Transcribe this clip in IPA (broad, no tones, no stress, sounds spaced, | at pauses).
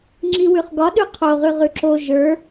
ŋ͡ǁ i w ʉ χ ɡ ɒ ɗ ʉ qʰ o ʁ ʉ ʁ ʉ ǁ o ʒ ə˞